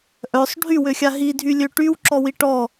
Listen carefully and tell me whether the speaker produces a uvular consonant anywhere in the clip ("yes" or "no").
no